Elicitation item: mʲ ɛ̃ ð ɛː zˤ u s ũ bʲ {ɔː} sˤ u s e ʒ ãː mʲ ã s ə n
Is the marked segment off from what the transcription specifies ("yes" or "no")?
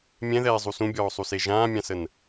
no